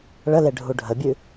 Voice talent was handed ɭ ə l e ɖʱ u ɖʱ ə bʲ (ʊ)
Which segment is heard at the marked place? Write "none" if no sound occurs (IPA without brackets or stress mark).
ʉ